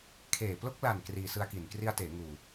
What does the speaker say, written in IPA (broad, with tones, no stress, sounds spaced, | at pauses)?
kʰ eː˨˩ p l o˦˥ k̚ l a˨˩ n k r iː˧ s ɯ˦˥ a̯ k i˨˩ n k r i˦˥ a̯ t eː˩˦ ŋ uː˨˩